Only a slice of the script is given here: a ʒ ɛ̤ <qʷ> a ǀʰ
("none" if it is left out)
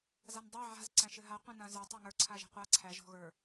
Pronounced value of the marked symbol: qʷ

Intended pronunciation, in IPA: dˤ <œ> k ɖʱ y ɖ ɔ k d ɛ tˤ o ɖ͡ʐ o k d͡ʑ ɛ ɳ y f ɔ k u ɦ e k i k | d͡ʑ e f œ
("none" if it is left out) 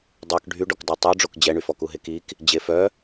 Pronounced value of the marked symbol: œ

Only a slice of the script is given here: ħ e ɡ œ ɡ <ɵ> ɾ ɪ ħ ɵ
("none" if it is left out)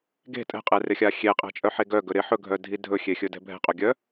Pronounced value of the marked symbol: ɵ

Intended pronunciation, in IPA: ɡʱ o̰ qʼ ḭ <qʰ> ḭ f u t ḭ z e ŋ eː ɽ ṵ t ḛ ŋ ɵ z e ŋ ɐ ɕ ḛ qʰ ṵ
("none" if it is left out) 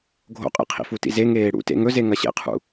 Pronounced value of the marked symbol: qʰ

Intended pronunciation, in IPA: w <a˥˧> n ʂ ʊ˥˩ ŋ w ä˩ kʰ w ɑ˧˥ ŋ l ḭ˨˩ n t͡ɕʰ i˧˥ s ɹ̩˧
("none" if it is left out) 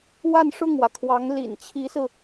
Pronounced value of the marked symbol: a˥˧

